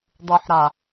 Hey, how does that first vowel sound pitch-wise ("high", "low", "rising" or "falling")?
low